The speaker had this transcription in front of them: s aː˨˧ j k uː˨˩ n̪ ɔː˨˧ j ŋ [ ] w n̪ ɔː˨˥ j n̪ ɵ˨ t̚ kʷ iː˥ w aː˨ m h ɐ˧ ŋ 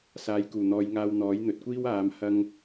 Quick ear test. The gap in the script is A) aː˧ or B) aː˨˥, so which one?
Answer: A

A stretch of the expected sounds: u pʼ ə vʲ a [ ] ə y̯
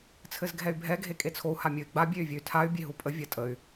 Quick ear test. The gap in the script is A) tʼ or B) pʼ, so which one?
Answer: A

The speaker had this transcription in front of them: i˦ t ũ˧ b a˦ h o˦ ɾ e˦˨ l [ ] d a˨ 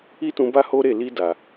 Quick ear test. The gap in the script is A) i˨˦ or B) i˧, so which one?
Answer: B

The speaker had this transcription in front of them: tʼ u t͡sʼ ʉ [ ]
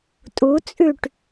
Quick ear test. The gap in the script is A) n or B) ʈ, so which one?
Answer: B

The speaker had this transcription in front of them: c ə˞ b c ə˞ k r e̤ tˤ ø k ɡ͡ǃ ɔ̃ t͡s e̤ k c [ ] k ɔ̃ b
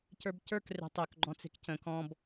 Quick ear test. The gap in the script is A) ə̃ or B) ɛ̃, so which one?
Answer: A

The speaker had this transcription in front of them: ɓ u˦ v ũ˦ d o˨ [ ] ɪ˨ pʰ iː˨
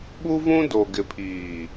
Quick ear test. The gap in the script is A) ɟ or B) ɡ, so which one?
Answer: B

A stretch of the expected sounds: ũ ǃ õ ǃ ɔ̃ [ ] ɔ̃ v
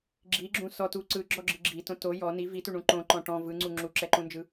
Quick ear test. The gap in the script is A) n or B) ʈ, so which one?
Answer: B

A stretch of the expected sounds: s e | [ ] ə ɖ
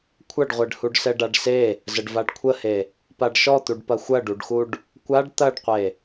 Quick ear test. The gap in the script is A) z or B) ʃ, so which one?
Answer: A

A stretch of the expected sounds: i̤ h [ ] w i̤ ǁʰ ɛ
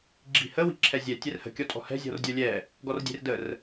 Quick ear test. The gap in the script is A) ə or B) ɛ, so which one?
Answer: A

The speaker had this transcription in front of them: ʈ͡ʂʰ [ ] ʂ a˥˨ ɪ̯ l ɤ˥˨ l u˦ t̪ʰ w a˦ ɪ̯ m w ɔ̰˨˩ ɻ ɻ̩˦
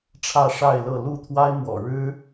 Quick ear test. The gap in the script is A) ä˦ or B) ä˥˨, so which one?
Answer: B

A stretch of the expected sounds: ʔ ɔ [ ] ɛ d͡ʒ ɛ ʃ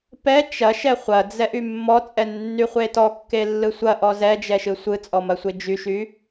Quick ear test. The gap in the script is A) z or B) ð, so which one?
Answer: A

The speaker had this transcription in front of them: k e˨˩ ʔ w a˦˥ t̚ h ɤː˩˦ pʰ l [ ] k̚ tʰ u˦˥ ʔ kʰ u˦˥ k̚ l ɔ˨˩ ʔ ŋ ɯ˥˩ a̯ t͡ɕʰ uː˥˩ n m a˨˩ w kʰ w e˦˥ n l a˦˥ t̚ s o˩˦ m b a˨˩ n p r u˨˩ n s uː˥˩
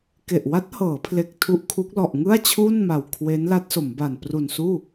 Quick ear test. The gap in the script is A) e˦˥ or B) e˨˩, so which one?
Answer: B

